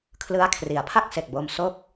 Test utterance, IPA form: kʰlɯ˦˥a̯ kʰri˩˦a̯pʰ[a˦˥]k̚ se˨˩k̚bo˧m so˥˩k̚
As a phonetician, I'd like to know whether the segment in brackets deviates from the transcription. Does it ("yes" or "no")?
yes